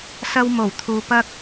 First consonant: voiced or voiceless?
voiceless